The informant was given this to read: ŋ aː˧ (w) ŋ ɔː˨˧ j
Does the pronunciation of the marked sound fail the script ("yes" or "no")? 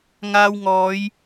no